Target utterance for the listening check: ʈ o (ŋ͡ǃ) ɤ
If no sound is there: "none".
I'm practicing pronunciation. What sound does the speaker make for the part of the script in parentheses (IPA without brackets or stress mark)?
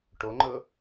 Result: ŋ͡ǃ